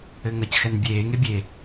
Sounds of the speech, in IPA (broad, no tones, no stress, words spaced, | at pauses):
ɘŋɐcxɛn bʲeːŋe bʲe